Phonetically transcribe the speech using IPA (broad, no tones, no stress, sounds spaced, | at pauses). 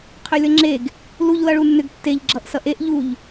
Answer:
qʰ ø lʲ ʌ ŋ͡ǁ e ɡ | l u ʎ l ʌ ɭ u nː ʏ ɡ tː e ʎ ɡ͡ǁ ʌ ʔ s ʌ ʔ e ʔ ʎ u ʎ